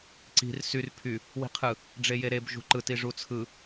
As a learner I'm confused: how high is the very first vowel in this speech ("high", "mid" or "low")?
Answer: high